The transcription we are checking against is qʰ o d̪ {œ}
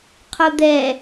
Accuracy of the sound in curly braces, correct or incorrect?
incorrect